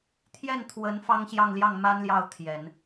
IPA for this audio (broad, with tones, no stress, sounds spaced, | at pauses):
t̪ʰ j ɛ˥˩ n t̪ʰ w ə˧˥ n f ɑ˥ ŋ ɕ j ɑ˥˧ ŋ l j ɑ˥˩ ŋ m a˥ n l j ɑ˥˩ ʊ̯ t̪ʰ j ɛ˨˩˦ n